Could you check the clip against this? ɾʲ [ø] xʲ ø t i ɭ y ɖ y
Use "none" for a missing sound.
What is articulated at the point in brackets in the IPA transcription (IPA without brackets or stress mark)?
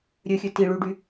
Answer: ø